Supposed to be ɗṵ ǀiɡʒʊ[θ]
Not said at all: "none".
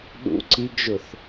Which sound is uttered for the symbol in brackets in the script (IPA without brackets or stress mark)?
θ